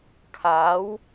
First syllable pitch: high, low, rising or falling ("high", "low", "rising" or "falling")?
rising